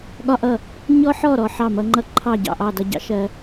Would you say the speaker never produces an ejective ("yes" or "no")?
yes